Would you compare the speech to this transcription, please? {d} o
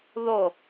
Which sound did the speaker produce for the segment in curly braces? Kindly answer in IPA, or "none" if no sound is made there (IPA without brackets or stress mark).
ð